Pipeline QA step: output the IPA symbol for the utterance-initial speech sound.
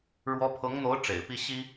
ɻ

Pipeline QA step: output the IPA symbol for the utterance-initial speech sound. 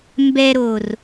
m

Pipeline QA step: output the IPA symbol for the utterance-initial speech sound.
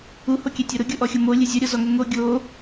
u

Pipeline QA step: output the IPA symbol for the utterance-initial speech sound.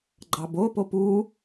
ɡ͡ǃ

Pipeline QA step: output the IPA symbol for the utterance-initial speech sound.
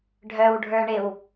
ɖʱ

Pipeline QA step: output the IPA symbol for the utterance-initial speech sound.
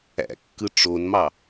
æ̰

